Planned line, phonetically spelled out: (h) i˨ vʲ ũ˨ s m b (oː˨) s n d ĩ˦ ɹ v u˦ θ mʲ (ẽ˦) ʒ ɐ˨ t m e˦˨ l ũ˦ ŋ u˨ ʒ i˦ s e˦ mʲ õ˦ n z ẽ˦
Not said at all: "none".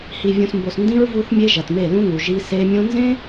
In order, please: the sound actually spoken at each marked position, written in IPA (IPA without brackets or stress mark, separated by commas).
h, o˨, e˦